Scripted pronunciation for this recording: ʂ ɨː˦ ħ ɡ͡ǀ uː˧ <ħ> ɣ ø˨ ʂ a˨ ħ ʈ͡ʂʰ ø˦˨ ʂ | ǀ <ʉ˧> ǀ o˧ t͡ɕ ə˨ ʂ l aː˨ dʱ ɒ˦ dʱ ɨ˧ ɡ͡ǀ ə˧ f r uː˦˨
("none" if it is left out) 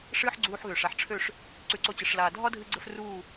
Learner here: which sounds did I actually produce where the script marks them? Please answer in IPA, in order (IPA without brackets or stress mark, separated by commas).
ħ, ʉ˧